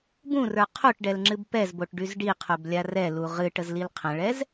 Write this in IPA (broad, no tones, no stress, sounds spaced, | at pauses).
b ũ r ə˞ qʰ o ʈ ɖ ɛ l ŋ͡ǁ ɨ b p ɛ z b o ʈ ɖ y z ɖ i qʰ o b lʲ a r ɛ l u ʁ ɨ ʈ ə z l i l qʰ ə̃ ɭ ɛ z